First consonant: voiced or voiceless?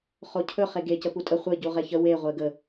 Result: voiceless